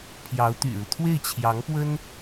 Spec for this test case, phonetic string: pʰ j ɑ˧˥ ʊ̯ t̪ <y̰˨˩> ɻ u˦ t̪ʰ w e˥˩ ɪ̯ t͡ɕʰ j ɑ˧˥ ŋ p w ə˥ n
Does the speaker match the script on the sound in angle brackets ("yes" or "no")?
yes